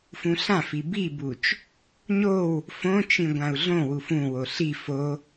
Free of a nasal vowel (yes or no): no